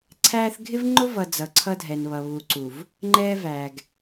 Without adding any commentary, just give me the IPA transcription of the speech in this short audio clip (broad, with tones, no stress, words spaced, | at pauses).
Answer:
ǀʰæː˦θ ɡʱɪ˦vŋ͡ǃʊ˦ vʌ˨ d͡zʌ˨ǀʰʌ˦dʱɛ˨nβʌ˨ βu˨ǀu˨v | ŋ͡ǃɛː˦ væ˨ɡ